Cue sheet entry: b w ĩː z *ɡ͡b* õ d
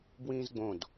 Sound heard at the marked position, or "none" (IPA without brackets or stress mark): ɡ͡b